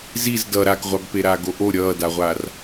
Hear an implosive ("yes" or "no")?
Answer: no